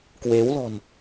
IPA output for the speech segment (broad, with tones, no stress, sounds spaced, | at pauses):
k w e˨˦ w l ɔ̤˨˩ n